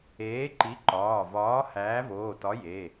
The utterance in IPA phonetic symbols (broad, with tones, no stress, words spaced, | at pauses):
eː˨˥ǃi˨˥ǃɒː˩˧˩vɒː˨˥ hæː˨˥voː˩˧˩tɒ˨˥ je˩˧˩